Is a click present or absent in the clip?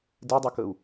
absent